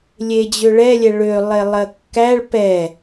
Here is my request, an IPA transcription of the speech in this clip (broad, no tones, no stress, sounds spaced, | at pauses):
lʲ e d͡ʑ ø ɭ ɛ lʲ ɛ ɭ ø lˠ e lˠ ɜ kː æ ɭ p ɛ